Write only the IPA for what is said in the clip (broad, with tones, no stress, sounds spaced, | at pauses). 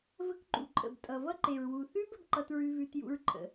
v ə˦ k ǃ ṵ˨ ǃʼ ə̰˨ b tʼ ʌ˨ v ʌ˦ ǃ e˨ ɹ w u˨ θ ʉ˦ b ə˦ b ǃ ʌ˦ t ɹ ʉ˦ v ʉ˦ t j ṵ˦ ɹ ǃʼ ə̰˨